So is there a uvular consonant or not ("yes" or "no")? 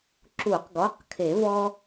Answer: yes